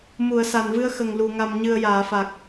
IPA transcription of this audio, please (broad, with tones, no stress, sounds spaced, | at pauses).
m u˨˩˨ ə̯ s a˨˩ n v ɨ˧ ə̯ x ə˨˩ ŋ l u˨˩ ŋ a˨˩ m ɲ ɨ˨˩ ə̯ j aː˨˩˨ f a˨˩ k̚